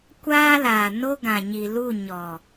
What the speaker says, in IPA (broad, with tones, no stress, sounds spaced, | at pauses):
kʷ aː˦ l aː˨ n o˦ ɡ ã˨ ɲ i˨ l u˦˨ ɲ ɔ˨